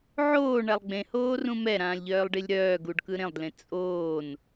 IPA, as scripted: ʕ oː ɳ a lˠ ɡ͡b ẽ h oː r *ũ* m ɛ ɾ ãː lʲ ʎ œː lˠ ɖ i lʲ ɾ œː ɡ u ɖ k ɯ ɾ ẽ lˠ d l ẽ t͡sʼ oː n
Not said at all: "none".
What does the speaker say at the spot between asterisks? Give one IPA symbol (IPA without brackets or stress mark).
ũ